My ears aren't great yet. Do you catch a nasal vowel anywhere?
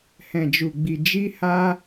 yes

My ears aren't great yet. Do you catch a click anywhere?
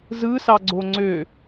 yes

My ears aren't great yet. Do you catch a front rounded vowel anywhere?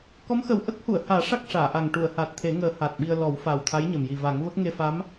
no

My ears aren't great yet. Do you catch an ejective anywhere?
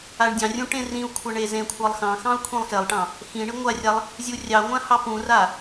no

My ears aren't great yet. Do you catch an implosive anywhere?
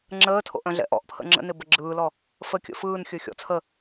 no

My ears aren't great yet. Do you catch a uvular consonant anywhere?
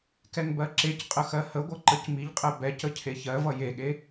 yes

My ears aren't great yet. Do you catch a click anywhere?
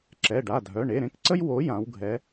yes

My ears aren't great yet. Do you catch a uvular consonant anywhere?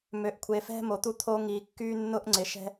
no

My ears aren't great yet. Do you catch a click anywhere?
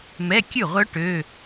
no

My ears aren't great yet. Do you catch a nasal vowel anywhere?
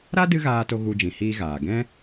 yes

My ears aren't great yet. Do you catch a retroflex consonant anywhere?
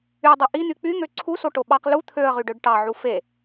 yes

